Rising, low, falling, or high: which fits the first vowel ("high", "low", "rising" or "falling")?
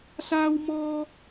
high